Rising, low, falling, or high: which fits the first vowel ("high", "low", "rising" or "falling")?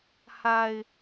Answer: low